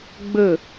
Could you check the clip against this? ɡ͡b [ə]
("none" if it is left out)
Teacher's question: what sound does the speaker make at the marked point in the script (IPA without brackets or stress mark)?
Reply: ə